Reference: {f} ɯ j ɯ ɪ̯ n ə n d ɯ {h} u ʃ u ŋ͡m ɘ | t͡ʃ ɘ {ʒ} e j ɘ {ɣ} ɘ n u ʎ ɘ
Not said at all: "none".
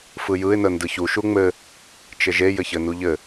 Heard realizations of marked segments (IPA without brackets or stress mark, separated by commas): f, ç, ʒ, ç